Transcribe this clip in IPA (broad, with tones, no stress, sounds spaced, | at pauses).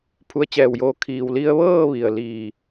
pʰ u˧ ə̯ t͡ɕ ɛː˧˩ w j oː˧ kʰ iː˩ w l i˧ ə̯ ʋ ɤː˥˨ ʋ i˩ ə̯ l iː˧˩